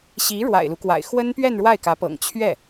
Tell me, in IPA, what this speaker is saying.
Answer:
ɕ i˧˥ ɻ w a̰˨˩ ɪ̯ l u˦ k w a̰˨˩ ɪ̯ x w ə˥ n p ɥ ɛ˥˧ n ɻ w a˥˩ ɪ̯ k ä˧˥ p ɤ̰˨˩ ŋ t͡ɕʰ ɥ ɛ˥˩

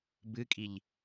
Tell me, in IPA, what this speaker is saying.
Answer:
b ɨ kʼ i ʎ

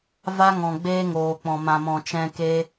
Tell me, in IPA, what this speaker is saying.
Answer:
v a˦ ŋ ɔ̃˨ ɡ͡b eː˦ ŋ oː˨ k͡p ɔ̃˨ m ã˨ m ɔ̃˨ t͡ʃ ɛ̃˧ k e˦

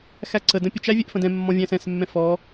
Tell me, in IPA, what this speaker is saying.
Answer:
x æ ǀ ə d ə̃ pʲ ə t͡ʃ æ vʲ ɛ ʔ f ə̃ d ɛ̃ mː ɔ̃ vʲ æ̃ s ɛ̃ s mː ɛ̃ f ɔ

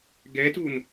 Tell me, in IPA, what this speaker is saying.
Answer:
ɡ ɛ t u n

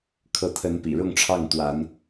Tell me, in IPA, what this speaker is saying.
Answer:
kʰ ɤ˨˦ t̪ʰ ə˨˦ n p ḭ˨˩ ɻ ʊ˥˨ ŋ ʈ͡ʂʰ ɑ˥˨ ŋ t̪ w a˨˦ n

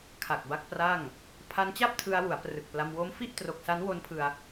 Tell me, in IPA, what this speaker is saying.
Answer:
kʰ a˨˩ k̚ b a˦˥ k̚ p r a˥˩ ŋ | pʰ a˦˥ n t͡ɕ a˥˩ p̚ tʰ ɯ˧ a̯ w u˩˦ a̯ p r ɯ˨˩ k̚ p l a˧ m w o˦˥ m f i˥˩ ʔ t r o˨˩ k̚ s a˦˥ n w o˦˥ n pʰ ɯ˧ a̯

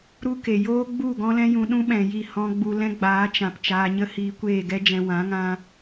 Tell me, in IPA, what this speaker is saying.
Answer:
ɾ u˦ k e˨ j oː˦ ɡ͡b u˦˨ ɡ ɔ̃˦ l ɛ̃˦ j ũ˧ ɗ ũ˦ ɓ ɛ̃˨ j i˦˨ h ɔ̃˦ ɡ͡b u˧ l ɛ̃˦ ɡ͡b aː˨˦ t͡ʃ ã˨ p t͡ʃ aː˧ ɲ ə˦ h iː˧ kʷ eː˦˨ ɡ ɛ˦ d͡ʒ ɛ̃˧ w ã˨˦ ŋ ã˧

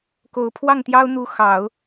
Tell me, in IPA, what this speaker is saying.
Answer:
k o˨˩ ʊ̯ pʰ w ɑ˥˩ ŋ t̪ j ɑ˥ ʊ̯ n̪ u˧˥ x ɑ˨˩˦ ʊ̯

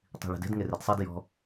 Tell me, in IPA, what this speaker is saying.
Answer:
tˤ i̤ ɭ e̤ d e̤ d ŋ e r e d sˤ e d j ɔ̤

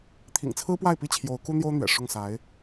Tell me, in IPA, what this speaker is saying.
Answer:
t̪ʰ ḭ˨˩ ŋ t͡sʰ ɹ̩˥ p w a˥˩ ɪ̯ p i˥ t͡ɕʰ j o˧˥ ʊ̯ k u˥ n̪ j o˥ ʊ̯ n̪ ɥ ɛ̰˨˩ ʂ ʊ˥˩ ŋ s a˧˥ ɪ̯

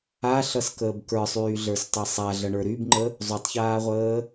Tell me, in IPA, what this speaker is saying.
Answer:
a ɬ ʌ s k əː b k ə˞ sˤ yː ɮ ə˞ s tˤ e sˤ a ɮ ʌ ɳ ə˞ ɾ y b ŋ͡ǃ ə | zˤ u tˤ ç aː ʁʷ əː

